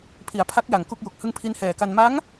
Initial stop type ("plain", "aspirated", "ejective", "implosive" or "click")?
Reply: aspirated